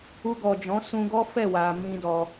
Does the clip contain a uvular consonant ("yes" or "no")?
no